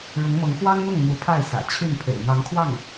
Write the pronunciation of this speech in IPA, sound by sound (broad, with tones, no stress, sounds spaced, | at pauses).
ɻ ʊ˧˥ ŋ m ɤ˧˥ ŋ x w ɑ˥ ŋ n̪ ʊ˥˩ ŋ m u˧˥ pʰ a˥˩ ɪ̯ s ä̰˨˩ t͡ɕʰ y˥˩ n pʰ ḛ˨˩ ɪ̯ n̪ ɑ˧˥ ŋ kʰ w ɑ˥˩ ŋ